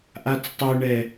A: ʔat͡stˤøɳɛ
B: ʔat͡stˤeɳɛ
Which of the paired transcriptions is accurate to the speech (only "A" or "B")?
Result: A